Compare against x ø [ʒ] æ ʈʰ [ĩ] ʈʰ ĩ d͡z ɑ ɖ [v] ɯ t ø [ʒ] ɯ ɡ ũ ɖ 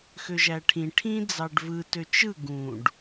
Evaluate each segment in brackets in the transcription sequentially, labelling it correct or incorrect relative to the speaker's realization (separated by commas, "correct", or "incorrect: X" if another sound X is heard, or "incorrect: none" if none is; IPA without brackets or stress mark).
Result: correct, correct, correct, incorrect: t͡ʃ